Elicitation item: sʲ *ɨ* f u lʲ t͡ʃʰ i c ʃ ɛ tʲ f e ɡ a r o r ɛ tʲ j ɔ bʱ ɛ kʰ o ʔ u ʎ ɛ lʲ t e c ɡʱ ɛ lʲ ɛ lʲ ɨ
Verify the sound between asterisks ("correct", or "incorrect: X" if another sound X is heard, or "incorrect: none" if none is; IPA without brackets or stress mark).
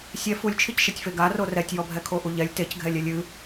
incorrect: ɛ